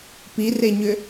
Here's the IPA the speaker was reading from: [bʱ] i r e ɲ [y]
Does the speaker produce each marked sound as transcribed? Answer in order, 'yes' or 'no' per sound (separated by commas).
no, no